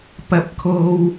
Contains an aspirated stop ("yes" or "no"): yes